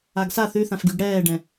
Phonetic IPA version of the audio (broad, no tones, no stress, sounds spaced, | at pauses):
a ɡ s a θ ʉ θ ã f ɡ y ɡ ɽ ɛː ɖ ɛ̃